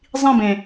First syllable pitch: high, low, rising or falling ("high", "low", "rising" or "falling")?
falling